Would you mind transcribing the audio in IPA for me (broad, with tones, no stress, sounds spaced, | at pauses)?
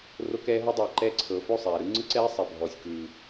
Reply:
r o˦ k ɛː˧ ɦ ɤ˧ dˤ ɤː˨ ǃ ɛː˧ ǀʰ ɤː˨ f o˦˨ sˤ ɛː˨ ɾ ɯ˦ ŋ͡ǀ ɯ˦ ǀ ɛː˦ sˤ ɛ˨ bʱ ɔː˨ sʲ k ɯː˨